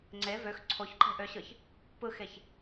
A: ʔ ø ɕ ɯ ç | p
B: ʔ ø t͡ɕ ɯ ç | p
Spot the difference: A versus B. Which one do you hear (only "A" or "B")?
A